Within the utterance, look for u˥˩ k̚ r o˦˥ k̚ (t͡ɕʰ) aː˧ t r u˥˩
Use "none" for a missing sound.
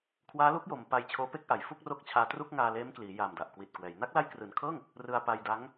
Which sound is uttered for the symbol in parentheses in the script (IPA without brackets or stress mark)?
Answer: t͡ɕʰ